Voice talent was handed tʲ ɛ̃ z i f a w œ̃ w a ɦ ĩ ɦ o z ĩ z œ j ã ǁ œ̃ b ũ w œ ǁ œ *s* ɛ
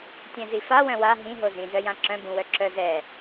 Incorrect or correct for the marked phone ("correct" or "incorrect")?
incorrect